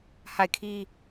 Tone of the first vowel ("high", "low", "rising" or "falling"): falling